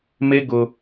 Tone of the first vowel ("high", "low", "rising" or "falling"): high